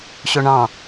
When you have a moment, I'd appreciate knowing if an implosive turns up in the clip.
no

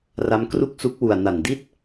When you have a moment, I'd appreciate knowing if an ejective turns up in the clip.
no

